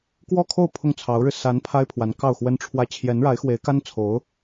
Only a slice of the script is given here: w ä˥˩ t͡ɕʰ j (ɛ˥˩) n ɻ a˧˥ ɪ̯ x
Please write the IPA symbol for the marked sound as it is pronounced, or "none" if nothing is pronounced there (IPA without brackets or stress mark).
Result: ɛ˧˥